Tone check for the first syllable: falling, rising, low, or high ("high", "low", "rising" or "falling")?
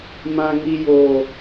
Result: high